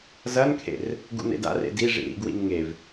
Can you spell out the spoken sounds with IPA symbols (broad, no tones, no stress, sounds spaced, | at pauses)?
z ɐ n kʰ ḛ r | ɡ ṵ n ḛ d a̰ r ḛ d i ʐ ḭ ɾ ḭ ɡ w ḭ n ŋ e v